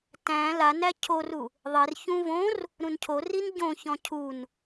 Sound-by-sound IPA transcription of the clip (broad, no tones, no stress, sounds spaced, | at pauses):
t æ̃ l a n æ cʰ o r u | ðˤ e r ç ũ v õ r | ɾ ũ n cʰ o r i n ɟ õ ç ɔ̃ cʰ u n